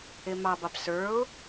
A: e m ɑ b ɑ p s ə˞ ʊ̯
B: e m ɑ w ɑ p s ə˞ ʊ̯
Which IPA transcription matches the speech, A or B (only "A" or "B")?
A